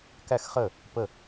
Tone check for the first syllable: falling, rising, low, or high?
falling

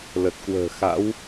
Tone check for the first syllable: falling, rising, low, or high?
low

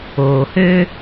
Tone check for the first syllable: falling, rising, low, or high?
low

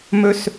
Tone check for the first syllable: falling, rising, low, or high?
high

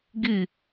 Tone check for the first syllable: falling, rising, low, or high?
falling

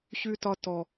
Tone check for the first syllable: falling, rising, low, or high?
high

